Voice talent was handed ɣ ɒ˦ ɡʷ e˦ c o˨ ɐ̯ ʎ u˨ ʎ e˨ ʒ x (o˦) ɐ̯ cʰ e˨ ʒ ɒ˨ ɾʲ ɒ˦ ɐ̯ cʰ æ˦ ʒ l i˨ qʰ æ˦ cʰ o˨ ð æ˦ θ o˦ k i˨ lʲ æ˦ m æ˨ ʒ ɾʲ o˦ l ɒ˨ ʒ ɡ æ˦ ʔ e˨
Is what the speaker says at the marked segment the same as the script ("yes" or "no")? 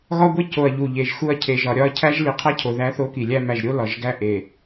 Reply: no